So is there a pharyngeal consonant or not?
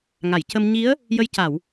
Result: no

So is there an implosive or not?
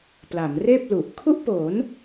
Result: no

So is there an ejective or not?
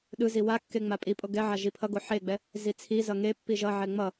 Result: yes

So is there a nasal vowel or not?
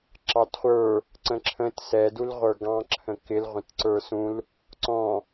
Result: yes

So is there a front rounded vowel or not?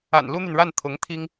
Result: yes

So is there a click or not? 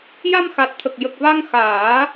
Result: no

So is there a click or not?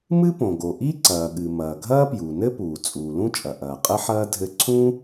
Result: yes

